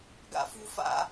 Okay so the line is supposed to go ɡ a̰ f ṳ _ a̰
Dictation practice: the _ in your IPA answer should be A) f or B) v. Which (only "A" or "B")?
A